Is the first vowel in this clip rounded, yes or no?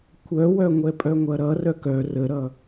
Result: yes